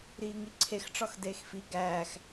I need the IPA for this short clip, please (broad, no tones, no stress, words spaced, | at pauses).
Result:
ɾiːŋiǀʰex ʈ͡ʂɒxdeːxfi ɡæːx